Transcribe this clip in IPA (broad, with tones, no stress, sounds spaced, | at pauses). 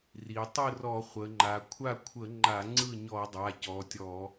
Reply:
r i˩˧ tˤ ɯ˥˩ r ɔ˧˩˧ χʷ ə˩˧ ŋ͡ǃ a˩˧ kʷʰ a˥˩ kʷʰ ə˧˩˧ ŋ͡ǃ a˧˩˧ ŋ͡ǀ ɯ˥˩ ɲ ɔ˧˩˧ dˤ a˩˧˩ c ɔ˩˧˩ tʲ ɔ˧˩˧